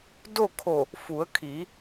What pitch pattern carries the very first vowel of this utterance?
falling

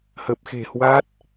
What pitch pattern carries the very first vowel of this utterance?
low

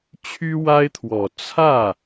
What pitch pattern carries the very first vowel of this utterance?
high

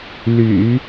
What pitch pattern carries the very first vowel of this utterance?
low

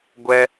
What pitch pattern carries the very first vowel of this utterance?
high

